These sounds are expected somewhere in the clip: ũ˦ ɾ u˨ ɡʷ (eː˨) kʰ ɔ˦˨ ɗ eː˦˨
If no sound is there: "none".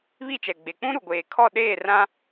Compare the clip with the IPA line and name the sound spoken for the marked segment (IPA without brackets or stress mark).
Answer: eː˨